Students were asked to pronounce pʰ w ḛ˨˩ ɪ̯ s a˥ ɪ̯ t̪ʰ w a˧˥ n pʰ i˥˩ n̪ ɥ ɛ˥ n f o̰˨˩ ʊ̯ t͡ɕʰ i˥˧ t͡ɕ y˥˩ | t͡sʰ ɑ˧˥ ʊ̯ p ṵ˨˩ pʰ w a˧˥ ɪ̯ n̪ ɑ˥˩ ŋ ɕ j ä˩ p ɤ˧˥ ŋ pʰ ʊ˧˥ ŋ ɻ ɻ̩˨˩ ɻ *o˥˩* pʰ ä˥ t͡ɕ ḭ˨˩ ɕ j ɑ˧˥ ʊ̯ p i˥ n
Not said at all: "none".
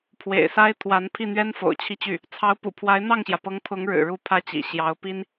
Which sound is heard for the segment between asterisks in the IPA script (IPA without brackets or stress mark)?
u˥˩